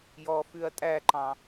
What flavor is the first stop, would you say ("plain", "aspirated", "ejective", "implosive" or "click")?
ejective